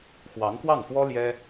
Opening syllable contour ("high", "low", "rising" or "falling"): rising